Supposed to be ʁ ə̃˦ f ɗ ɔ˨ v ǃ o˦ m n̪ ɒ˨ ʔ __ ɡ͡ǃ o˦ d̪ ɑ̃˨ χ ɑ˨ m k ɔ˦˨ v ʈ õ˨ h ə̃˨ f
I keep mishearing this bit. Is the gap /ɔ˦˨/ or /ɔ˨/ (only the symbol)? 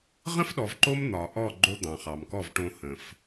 ɔ˦˨